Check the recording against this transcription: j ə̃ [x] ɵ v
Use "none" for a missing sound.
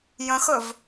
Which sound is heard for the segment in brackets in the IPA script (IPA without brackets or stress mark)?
x